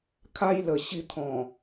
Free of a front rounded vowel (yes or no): yes